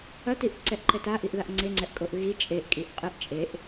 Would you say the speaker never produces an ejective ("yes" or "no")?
no